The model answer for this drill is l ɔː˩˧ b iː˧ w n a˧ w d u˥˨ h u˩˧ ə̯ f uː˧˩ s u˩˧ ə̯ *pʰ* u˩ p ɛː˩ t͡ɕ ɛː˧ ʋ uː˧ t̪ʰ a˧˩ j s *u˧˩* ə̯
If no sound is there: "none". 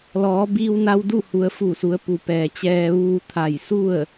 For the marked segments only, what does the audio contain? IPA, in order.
p, u˥˨

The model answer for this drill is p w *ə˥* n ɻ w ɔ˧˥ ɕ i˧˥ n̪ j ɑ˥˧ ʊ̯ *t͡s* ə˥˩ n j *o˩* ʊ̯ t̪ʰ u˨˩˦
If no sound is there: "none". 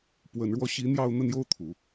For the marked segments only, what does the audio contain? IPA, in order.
ə˨˩, n̪, o˥

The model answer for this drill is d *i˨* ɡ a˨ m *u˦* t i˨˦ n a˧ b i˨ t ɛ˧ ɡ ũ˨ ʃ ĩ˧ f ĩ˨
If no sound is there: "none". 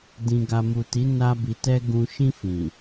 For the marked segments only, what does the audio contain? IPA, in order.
ĩ˨, u˨

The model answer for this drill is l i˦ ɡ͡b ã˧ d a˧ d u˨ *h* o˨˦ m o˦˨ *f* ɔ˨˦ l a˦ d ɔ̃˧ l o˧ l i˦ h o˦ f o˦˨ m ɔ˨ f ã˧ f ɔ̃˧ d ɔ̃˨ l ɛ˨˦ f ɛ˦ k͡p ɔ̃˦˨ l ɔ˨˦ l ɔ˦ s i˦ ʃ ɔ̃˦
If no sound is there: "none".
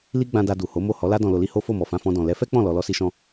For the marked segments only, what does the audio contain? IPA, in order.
h, h

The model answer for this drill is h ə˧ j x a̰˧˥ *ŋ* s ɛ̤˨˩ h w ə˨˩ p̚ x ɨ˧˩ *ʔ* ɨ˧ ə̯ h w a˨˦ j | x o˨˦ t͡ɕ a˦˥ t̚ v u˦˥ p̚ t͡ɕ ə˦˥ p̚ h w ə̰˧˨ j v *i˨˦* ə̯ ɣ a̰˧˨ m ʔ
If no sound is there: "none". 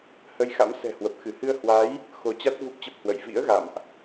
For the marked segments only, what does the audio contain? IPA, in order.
m, h, ḭ˧˥

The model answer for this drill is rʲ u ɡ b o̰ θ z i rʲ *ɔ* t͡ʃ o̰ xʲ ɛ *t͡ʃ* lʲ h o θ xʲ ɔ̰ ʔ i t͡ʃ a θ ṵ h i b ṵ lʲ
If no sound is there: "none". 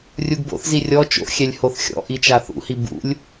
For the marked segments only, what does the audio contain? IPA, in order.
ɔ, none

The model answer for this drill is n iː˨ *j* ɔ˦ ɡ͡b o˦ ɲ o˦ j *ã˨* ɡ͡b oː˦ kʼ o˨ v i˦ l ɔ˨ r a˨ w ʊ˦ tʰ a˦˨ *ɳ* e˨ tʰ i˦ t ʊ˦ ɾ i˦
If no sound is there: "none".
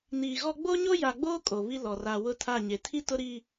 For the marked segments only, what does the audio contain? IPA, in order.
ɣ, a˨, ɲ

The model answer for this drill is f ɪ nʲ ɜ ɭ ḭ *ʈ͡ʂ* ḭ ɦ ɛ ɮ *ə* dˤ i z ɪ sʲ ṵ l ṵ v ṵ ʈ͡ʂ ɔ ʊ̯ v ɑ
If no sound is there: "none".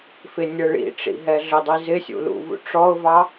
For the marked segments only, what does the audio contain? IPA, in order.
ʈ͡ʂ, ə

